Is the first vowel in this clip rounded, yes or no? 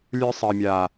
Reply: no